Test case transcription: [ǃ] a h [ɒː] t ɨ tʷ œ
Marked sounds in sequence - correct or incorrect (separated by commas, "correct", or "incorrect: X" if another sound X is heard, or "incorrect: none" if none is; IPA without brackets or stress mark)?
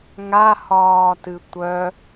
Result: incorrect: ŋ, correct